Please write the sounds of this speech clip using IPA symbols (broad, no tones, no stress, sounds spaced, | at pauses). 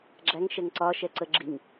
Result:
ɡ͡ǁ æ ŋ ʃ ɛ ŋ ǀ ɒ ʃ ɛ ǀ ə ɡ͡ǁ i ŋ